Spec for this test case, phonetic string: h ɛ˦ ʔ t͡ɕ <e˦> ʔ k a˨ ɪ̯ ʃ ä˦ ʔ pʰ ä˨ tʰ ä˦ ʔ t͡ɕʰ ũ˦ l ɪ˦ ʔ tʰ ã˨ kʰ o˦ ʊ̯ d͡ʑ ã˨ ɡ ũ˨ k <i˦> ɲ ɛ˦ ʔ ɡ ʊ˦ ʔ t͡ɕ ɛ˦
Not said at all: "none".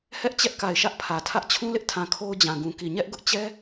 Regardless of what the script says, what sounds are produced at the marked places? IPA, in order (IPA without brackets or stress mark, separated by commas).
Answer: ɛ˦, i˨